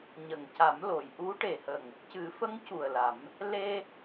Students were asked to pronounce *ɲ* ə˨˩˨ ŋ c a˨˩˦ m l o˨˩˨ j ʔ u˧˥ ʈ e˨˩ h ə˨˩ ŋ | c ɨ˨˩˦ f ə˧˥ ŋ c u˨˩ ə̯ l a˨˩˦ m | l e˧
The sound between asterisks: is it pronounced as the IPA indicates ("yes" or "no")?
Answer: yes